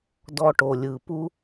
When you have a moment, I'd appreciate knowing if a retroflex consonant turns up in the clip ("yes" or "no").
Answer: yes